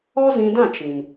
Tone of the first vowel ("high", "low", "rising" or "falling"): high